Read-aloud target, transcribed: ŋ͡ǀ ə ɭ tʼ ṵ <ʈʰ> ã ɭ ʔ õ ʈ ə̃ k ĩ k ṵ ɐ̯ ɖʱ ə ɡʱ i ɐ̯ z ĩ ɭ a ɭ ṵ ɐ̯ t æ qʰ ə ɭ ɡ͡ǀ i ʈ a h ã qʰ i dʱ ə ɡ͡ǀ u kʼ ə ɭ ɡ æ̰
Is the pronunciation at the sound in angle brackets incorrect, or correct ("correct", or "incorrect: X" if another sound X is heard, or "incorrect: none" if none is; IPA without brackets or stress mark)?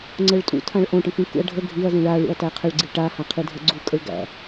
incorrect: tʰ